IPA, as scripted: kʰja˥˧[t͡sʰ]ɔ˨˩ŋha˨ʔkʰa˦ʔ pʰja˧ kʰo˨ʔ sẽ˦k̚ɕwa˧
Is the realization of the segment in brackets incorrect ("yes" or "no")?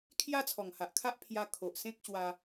no